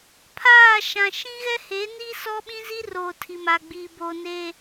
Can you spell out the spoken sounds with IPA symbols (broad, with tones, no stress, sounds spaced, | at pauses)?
pʰ aː˦˨ ʃ ã˨ ʃ ĩ˦ ɣ ɛ˦ h eː˨˦ n i˦ s ɔ˦ ɓ ĩ˦ z i˦ r oː˨ tʰ i˨ m a˨ ɡ͡b iː˨ b oː˨ n eː˨